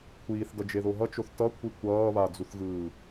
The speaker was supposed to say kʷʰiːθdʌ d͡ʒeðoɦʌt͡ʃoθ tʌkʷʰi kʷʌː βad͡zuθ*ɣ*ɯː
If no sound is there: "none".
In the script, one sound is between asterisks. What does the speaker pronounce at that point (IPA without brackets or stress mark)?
ɣ